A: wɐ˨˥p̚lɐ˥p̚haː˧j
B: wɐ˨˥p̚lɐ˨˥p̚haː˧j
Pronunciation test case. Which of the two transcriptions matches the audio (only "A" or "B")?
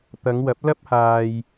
A